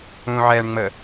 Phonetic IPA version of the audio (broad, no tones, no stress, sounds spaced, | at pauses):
ũ ʕ ɛ ɳ ŋ͡m ə